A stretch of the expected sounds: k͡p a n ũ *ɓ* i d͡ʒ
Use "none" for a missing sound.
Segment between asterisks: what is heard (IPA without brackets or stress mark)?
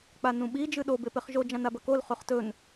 ɓ